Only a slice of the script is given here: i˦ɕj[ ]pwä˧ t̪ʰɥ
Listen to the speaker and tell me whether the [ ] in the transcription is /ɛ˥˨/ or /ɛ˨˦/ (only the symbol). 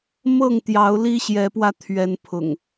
ɛ˨˦